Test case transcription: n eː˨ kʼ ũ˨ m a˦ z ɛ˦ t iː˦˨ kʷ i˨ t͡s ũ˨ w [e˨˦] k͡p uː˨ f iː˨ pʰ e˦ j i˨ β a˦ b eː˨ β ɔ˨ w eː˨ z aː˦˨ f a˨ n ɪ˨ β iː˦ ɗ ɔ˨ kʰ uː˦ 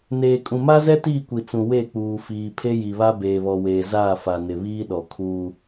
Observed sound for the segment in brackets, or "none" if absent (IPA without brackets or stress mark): e˦˨